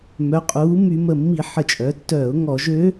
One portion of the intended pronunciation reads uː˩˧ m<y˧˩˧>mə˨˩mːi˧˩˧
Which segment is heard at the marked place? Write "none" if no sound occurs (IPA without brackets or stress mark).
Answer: y˧˩˧